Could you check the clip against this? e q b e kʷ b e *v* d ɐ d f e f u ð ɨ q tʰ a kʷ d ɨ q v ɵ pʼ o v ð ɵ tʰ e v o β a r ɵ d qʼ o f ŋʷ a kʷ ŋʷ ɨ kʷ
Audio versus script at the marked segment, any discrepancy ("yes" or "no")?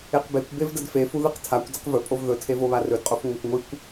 no